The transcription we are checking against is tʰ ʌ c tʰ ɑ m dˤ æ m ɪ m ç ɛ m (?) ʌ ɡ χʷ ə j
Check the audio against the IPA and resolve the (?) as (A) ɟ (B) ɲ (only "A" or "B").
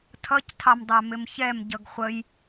A